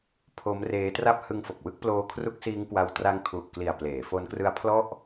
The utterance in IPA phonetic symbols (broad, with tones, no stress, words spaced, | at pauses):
pʰo˦˥mreː˦˥tra˥˩p̚ hɯ˦˥ŋfo˨˩k̚wɯ˥˩k̚ ploː˦˥kʰru˦˥k̚siː˦˥ŋkwa˧w tra˦˥ŋkʰu˨˩ʔkli˨˩a̯ pleː˩˦fo˦˥nkrɯ˦˥a̯ pʰlɔ˥˩ʔ